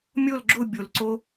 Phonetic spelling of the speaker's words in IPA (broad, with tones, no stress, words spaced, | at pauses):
mʲo˦˨lɡ͡ǁʊ˦˨ bʲo˩˧lǀo˦˥